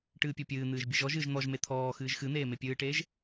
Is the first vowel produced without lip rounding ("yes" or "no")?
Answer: yes